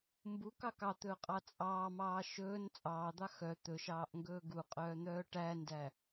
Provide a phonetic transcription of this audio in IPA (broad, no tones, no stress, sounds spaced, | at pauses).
m b u k ɑ k ɑ t̪ ɵː qʼ ɑ t͡sʼ ɑː m ɑː ʃ ɵː n t͡sʼ ɑː d̪ ɑ x œ t̪ ɵ ʃ ɑː ʔ ŋ ɡ ɵː ɡ u qʼ œː n̪ œː ʈ æ n d æ